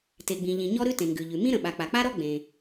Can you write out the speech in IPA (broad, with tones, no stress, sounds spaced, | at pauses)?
t e˩ ɡ͡b ĩ˩ ʎ ĩ˩ ɲ ɔ˥ ɾ ʉ˥ t ẽ˩ ŋ ɡ ʉ˩ ʎ ʉ˩ m ĩ˥ ɾ ə̃˩ ɓ a˩ k͡p a˩ k͡p a˥ ɾ ɔ˥ ɡ͡b ẽ˩